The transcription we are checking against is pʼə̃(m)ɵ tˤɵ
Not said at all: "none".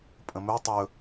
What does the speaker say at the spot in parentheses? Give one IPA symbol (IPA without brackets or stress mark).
m